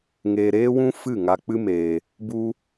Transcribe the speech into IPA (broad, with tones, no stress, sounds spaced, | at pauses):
ŋ eː˧ ɾ eː˦ w ũ˦ f ɨ˦˨ ŋ a˧ k͡p ɨ˦ m eː˧ | b u˧